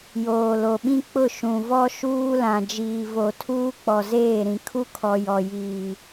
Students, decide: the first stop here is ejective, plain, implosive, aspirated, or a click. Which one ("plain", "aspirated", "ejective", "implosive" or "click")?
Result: implosive